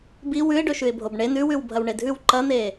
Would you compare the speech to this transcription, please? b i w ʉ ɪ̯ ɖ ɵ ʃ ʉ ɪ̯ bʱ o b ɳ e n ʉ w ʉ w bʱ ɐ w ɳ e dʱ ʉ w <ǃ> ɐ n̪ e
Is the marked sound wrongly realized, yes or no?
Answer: no